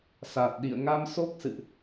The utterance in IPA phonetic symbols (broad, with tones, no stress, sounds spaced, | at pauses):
s a˨˩ t̚ ɗ ḭ˧˨ ə̯ ŋ a˧ m s o˦˥ k̚ s ɨ̰˧˨ ʔ